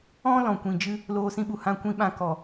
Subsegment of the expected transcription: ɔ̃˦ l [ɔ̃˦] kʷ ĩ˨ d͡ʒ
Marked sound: incorrect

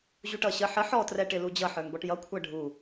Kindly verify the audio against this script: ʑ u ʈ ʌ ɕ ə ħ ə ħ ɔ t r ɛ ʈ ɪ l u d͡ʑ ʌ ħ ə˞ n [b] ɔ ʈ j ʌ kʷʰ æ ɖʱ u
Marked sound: correct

